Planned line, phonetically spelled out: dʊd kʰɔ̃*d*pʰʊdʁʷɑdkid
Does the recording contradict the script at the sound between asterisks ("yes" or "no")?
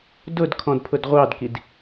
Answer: no